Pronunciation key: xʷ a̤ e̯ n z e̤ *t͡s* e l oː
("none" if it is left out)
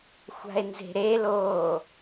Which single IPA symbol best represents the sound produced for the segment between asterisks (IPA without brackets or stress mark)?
ɾ